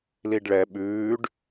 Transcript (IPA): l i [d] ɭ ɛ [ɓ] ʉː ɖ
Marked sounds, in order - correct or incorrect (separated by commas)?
incorrect, correct